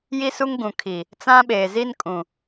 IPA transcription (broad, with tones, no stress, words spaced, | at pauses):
ji˦su˦ŋɡũ˨kʰi˨ | t͡sã˦ ɓeː˨zi˦nkʼũ˨